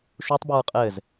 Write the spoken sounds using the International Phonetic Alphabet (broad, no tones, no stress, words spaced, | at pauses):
ʃutˤbeɹ qʼɘz